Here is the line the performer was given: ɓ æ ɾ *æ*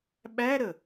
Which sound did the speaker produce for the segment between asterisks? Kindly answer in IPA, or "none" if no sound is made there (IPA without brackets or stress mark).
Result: ə